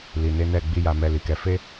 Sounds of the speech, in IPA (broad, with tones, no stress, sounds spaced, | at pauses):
l i˨ n e˧ n ɛ˨ ɡ͡b i˨ j a˨ m ɛ˨ l i˨ k ɛ˨˦ f e˦